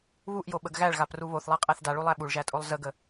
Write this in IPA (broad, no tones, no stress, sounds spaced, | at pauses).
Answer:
β u ʔ j o ɓ ə ɡ ɣ æ ɭ ɣ a p r u β o θ lˠ æ qʼ æ θ d a ɭ u lˠ æ ɓ u ɭ ʒ æ tʼ o lˠ z ə ɡ ə